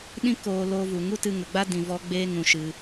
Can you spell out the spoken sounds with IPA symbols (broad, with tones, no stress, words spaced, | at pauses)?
ɗĩ˦koː˧ loː˧vu˨ ŋu˦tɨ˧ŋə˨ɡ͡ba˦ dĩ˧vɔ˦ ɡ͡beː˦ŋũ˧ʃɨ˧